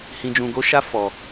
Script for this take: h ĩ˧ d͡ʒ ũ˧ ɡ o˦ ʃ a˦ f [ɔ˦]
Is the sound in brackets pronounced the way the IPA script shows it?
no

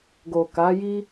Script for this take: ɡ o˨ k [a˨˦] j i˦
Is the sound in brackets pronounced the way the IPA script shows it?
yes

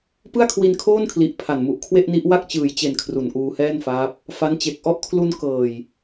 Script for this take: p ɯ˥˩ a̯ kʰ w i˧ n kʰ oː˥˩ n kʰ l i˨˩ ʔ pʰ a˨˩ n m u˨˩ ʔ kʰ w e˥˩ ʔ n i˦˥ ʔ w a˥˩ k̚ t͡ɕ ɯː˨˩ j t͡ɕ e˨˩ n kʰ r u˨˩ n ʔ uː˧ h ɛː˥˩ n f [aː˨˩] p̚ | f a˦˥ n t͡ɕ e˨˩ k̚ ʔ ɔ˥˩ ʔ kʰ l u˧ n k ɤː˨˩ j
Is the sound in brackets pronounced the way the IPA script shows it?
no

